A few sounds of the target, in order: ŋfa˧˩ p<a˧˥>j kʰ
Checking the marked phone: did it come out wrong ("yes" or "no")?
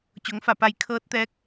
yes